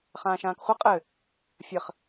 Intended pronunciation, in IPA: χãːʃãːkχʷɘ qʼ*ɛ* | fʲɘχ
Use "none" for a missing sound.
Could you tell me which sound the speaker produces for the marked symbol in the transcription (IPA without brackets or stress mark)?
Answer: ɘ